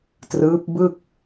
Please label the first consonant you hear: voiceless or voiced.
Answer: voiceless